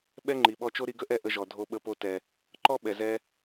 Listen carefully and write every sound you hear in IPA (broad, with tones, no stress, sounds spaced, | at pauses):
ɓ ɛ˦ ŋ͡ǃ i˨ ɓ ɔ˧ t͡ʃ o˦ ɾ i˧ ɡ ə˦ ʔ ɛ˦˨ ʔ ə˦ ʒ ɔ˨ dʱ o˧ ɓ ə˧ p o˧ t ɛ˨ | ǃ ɔ˦ ɓ ɛ˨ z ɛ˦